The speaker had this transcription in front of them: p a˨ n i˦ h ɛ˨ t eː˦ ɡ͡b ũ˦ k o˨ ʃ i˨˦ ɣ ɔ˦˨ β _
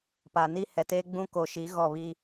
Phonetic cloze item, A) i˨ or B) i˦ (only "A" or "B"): B